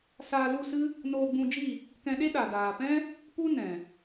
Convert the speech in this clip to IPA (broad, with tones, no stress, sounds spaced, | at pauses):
s aː˧ l u˦˨ s ɨ˦ | n oː˧ ɡ͡b ũ˧ d͡ʒ i˦˨ | k ɛ̃˧ ɗ e˦ ɗ a˨ d aː˨ p ɛ̃˦ | p u˦ n ɛ̃˨